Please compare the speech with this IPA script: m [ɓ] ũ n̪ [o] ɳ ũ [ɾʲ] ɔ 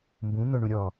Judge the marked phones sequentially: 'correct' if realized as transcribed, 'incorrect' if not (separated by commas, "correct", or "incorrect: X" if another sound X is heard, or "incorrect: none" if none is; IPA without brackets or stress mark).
incorrect: b, correct, correct